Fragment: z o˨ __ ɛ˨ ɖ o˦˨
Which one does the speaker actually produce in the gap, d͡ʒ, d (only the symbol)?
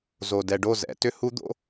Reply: d